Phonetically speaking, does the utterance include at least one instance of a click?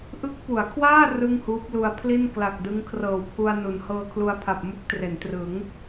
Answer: no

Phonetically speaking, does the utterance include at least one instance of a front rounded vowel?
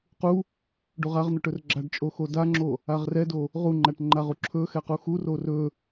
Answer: no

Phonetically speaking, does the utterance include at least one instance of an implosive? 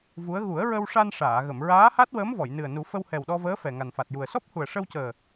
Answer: yes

